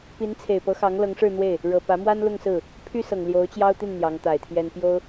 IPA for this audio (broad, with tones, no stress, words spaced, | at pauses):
pi˧˥nt͡sʰe˨˩ɪ̯pɤ˧˥xɑ˧˥ŋ lɤ˧˥ŋʂɻ̩˥˧n̪we˥˩ɪ̯ | ɻɤ˨˩pä˧˥mwa˥n lʊ˥˧ŋsɹ̩˥˩ | pʰy˥sɤ˨˩ŋ ljo˧˥ʊ̯t͡ɕjɑ˥ʊ̯t̪i˥˩n n̪jɑ˧˥ŋt̪a˨˩ɪ̯t̪ʰjɛ˥n pjo˥ʊ̯